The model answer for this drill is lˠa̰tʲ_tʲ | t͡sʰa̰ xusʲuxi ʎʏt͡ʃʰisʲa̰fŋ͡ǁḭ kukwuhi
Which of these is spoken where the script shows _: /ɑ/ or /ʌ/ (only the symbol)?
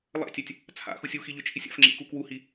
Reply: ɑ